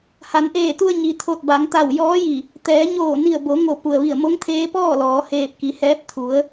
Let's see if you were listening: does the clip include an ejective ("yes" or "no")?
no